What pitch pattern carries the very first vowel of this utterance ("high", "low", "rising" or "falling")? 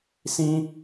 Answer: high